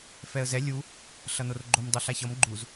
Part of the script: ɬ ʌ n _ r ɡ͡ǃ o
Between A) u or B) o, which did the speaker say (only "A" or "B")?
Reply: B